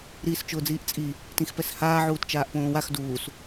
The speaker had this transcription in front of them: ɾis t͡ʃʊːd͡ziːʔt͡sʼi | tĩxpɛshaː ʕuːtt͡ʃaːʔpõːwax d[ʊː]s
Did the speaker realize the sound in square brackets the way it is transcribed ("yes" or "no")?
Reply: no